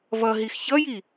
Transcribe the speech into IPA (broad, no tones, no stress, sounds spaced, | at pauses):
v ʌ ɦ i x ç ʌ j i